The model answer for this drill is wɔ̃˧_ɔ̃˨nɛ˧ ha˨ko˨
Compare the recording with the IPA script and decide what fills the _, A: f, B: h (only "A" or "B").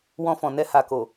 A